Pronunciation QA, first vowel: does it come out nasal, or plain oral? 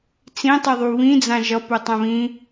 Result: nasal